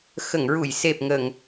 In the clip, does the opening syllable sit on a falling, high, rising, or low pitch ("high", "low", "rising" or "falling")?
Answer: low